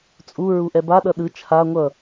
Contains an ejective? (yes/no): yes